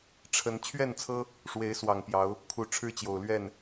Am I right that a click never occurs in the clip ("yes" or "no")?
yes